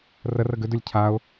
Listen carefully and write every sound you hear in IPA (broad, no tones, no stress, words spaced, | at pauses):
rərə ɡødølʲ cʰaʊ̯